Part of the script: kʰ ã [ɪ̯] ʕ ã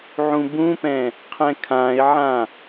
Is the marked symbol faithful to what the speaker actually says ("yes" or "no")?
yes